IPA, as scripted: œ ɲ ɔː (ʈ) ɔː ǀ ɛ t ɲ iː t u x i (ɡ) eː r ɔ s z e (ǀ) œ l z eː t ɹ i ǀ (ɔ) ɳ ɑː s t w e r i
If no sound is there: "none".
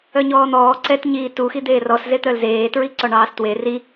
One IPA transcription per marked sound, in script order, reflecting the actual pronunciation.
n̪, d̪, t̪, ɔ

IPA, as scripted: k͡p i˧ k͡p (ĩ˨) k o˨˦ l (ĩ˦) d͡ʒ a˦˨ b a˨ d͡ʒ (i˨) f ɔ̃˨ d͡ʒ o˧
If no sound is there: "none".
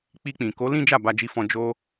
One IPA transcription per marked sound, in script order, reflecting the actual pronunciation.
ĩ˨, ĩ˦, i˨

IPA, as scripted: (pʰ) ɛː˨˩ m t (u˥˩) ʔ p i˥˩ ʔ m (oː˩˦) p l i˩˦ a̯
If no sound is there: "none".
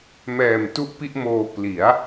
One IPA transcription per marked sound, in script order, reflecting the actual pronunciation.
m, u˥˩, oː˧

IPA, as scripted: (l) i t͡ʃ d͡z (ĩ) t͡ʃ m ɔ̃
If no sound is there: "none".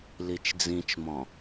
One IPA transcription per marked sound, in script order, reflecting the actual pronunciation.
l, ĩ

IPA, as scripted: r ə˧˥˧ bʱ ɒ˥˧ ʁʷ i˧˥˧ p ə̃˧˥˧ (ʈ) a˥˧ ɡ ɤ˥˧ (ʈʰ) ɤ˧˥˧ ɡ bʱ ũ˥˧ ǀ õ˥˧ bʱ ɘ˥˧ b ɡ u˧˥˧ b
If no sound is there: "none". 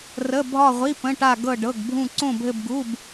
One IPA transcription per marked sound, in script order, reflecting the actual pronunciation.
ʈ, ɖ

